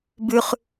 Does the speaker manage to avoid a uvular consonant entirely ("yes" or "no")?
no